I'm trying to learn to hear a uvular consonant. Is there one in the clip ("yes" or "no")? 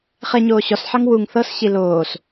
yes